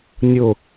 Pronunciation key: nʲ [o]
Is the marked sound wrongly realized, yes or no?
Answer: no